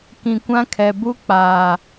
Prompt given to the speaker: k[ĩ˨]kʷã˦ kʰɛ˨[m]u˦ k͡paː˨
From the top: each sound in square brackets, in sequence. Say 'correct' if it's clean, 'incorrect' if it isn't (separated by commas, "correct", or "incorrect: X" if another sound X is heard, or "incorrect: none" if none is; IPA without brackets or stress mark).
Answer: correct, incorrect: b